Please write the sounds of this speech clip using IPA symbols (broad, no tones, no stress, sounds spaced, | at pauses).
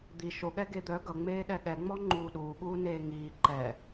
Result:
d̪ i ʃ o ɠ ɛ ɡ e d̪ œ ɡ ʌ ŋ͡m eː ɗ ɛ ɠ ɛ ŋ͡m ɔ ŋ͡ǃ uː ɗ uː ɠ uː n eː ŋ iː ǃ ɛ